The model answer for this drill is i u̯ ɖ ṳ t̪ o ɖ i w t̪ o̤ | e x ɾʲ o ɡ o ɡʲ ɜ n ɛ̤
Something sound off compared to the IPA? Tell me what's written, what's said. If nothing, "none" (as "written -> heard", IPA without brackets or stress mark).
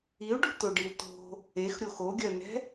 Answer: ɡ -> x